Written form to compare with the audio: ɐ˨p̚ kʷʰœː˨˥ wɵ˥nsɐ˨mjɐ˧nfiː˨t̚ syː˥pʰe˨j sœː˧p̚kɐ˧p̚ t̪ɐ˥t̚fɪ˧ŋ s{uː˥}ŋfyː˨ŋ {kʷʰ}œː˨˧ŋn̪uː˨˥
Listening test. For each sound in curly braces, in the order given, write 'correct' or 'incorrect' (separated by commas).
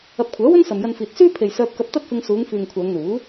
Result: incorrect, correct